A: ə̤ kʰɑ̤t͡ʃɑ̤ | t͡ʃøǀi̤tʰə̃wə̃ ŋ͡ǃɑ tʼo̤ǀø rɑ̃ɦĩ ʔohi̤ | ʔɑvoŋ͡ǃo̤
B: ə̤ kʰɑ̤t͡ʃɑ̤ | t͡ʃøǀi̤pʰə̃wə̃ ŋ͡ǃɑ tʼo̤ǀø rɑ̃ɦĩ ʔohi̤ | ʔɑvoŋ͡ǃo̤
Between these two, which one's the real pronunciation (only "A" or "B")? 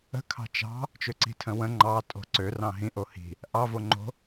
A